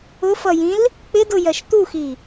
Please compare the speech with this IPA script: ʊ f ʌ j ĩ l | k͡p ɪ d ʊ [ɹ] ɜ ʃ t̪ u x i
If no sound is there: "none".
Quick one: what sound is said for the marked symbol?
j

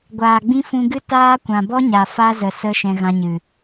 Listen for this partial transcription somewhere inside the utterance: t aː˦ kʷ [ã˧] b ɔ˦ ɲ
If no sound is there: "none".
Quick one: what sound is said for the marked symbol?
ã˨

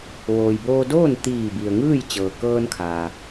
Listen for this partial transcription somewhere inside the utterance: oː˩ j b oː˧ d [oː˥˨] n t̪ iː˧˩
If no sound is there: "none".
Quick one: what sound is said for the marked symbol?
oː˥˨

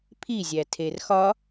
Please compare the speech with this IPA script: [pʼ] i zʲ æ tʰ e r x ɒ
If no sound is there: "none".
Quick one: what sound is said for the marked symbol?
pʰ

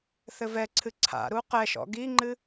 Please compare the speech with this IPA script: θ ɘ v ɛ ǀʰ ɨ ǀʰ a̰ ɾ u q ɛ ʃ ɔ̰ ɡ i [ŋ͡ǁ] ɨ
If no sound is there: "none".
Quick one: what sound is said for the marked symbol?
ŋ͡ǃ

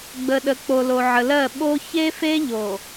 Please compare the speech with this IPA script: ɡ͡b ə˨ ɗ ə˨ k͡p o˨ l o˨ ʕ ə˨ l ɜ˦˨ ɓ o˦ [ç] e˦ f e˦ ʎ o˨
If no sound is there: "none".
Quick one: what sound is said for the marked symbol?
ç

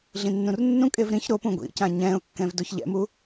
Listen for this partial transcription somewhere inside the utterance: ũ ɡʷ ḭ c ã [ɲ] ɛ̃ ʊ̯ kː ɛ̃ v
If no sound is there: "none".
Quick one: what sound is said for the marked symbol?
ɲ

